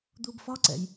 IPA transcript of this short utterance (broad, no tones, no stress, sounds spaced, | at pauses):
d̪ u b f ɒ ǀ ɛ̰ j